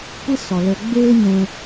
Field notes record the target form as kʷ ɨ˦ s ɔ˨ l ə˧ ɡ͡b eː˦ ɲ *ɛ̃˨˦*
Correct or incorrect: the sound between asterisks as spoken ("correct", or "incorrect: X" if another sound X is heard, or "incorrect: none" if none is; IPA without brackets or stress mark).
incorrect: ɛ̃˧